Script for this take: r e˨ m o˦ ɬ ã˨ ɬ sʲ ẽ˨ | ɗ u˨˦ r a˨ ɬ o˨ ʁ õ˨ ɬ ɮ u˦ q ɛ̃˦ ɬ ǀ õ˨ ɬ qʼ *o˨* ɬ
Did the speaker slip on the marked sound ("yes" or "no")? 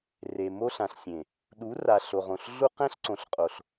no